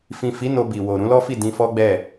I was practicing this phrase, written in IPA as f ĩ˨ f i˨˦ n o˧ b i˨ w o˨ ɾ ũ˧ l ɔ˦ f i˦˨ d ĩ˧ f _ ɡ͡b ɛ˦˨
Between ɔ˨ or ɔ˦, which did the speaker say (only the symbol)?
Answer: ɔ˦